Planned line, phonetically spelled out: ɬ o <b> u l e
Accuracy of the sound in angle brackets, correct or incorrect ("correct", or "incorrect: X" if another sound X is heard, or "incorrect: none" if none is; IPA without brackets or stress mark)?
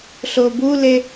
correct